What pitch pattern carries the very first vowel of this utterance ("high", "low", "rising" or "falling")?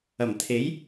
low